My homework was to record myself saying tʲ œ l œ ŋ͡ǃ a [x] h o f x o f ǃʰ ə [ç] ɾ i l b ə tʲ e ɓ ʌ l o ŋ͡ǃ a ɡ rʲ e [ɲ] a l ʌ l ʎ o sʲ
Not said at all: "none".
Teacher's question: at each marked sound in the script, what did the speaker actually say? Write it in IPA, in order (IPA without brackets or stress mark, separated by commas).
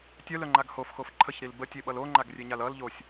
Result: ɡ, ç, ɲ